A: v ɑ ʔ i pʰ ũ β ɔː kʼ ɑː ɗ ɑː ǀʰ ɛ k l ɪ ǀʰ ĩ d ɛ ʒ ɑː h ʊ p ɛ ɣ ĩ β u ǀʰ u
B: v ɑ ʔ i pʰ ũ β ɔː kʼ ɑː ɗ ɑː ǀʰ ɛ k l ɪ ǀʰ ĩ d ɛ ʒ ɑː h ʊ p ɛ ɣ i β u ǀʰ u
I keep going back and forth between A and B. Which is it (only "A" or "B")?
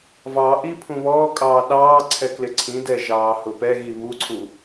B